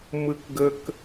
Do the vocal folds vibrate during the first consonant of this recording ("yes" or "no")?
yes